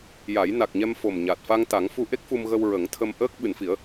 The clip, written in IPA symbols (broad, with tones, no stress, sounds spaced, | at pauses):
j a˨˩˦ j n a˨˩ k̚ ɲ ɛ˧ m f o˨˩ m ɲ a˨˩ t̚ f a˧ ŋ t̪ a˨˩˦ ŋ f u˧ ʔ e˦˥ k̚ f u˧ m ɣ ə˧ w ɹ ə˨˩˦ ŋ t̪ʰ ə˧ m ʔ əː˦˥ k̚ ɓ ɨ˨˩˨ n f i˨˩˦ ə̯